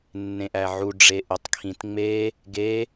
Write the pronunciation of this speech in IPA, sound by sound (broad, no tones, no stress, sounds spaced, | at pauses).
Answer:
nː ẽ ʔ æ ʕ u ɖ͡ʐ e ʔ u tˤ kʰ ĩ t ŋ͡m e | ɡ e